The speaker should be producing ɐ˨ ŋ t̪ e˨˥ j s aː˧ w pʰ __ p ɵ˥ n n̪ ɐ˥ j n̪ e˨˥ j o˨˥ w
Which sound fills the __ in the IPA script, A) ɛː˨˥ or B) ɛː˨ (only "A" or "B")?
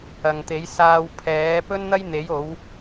A